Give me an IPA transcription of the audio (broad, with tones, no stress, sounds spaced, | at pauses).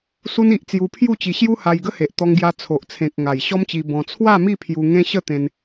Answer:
s u˧ n i˨ ʔ t͡s j u˧ pʰ j u˥˧ t͡ɕ i˧ ɕ j u˦ h a˧ j ɡ ə˦ h e˨ ʔ t̪ ɔ˧ ŋ ɡ j a˧ t͡sʰ o˨ ʔ t͡sʰ ẽ˨ k̚ ŋ a˨˩ j ɕ ɔ˦ m t͡ɕ i˧ b ɔ̃˧ t͡sʰ w a˥˧ m i˥˧ pʰ j u˧ ŋ ẽ˦ ɕ ə˥˧ t̪ ẽ˧ n